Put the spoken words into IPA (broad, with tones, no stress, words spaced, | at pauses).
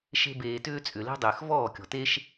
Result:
ʃe̤˧ beː˨tʏː˧ t͡sʼʏ˨le̤˦ dˤʏː˨xvɔː˦˨kʲɔ̤˨te˦ʃ